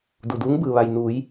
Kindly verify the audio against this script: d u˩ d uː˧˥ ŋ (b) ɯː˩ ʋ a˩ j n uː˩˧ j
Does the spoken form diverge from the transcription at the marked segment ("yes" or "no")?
no